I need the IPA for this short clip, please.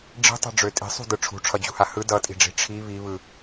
ɖ͡ʐ i̤ tˤ i̤ ɖ͡ʐ ø tʼ i̤ sˤ ṳ d ɯ ʈ͡ʂʰ ṳ ʈ͡ʂʰ ʌ d͡ʑ ṳ h a h ɯ d ʌ tʼ i̤ ɖ͡ʐ i̤ ʈ͡ʂʰ i β i β ɯ

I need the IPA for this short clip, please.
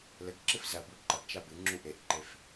l ɘ ɡ ǁ ɨ f z ɐ b u ǃ ɐ ɡ t͡ʃ a b ɨ ŋ͡ǁ u ʔ e ʔ ǃ e f

